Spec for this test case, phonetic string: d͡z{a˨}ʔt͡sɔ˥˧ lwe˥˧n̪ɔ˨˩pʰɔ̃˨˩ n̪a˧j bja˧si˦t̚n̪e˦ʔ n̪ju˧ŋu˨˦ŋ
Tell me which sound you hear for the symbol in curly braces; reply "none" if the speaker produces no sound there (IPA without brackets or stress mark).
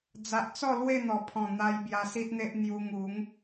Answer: a˨